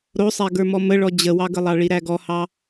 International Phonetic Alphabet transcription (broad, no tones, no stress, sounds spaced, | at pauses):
ɾ o sˤ æ ɡ ə˞ m ɔ m ə ɭ ɔ d͡ʑ ə w ɑ ɡ ə lˠ ɑ ɭ i ɾ æ ɡ ɔ h ɑ